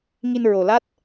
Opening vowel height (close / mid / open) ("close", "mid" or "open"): close